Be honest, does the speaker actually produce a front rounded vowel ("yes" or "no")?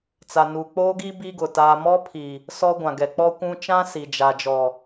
no